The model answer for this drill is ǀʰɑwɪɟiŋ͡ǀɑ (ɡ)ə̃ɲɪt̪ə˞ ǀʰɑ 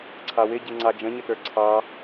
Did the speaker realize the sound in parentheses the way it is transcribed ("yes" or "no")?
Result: no